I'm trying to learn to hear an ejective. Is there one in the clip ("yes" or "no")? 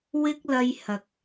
no